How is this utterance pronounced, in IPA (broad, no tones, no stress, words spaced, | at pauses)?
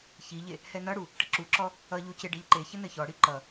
çiʎe | hɛnʌɽu | ʈəǁuǁɔ | ʌʎu ceɖeʎǃeçə nɘçɔɽi ǃʌ